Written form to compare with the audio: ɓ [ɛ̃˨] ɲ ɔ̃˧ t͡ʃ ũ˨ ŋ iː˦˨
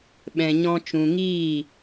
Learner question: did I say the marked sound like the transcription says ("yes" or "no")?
yes